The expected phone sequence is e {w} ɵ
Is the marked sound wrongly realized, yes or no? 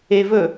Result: yes